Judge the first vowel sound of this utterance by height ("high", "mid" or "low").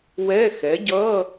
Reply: mid